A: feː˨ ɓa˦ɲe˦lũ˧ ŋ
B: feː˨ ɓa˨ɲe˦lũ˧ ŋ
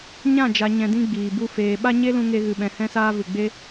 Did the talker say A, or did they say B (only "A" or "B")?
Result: A